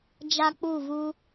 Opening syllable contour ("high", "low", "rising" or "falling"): high